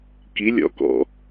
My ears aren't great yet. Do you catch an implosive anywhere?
no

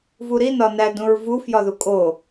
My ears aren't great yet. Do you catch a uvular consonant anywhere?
no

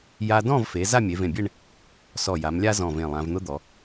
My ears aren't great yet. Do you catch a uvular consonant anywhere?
no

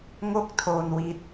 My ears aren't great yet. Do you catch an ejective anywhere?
no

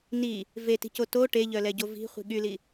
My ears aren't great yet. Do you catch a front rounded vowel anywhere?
yes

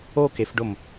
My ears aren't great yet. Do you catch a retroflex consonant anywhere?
yes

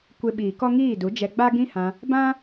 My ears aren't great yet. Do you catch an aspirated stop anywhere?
no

